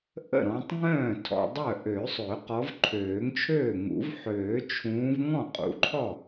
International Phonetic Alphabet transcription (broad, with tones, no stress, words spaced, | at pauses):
ʔə̰˥˩ɾɔ̃˨˦tˤ ŋœ̃ː˥˩ tʰɔ̰˨ dˤœ˥˩ʔø˨˩˦sˤø˨˩˦ qɔ˨˦vǃʰøː˨˩˦ŋt͡ʃʰøː˥˩ŋṵ˨˩˦v ħøː˨˩˦t͡ʃʰũː˨˦v ŋɔ̃˥˩qʼṵ˨ǃʰɔ˥˩